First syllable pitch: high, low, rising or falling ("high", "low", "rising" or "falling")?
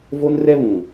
high